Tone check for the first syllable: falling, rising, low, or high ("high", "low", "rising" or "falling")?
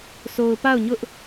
low